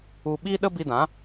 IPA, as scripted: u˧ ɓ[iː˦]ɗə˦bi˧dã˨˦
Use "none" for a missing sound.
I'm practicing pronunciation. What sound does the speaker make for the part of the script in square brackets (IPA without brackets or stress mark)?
iː˦